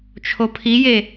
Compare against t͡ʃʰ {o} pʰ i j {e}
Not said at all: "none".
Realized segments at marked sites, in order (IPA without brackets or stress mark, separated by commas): o, e